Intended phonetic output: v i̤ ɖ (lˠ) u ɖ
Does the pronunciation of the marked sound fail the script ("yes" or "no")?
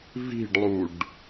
no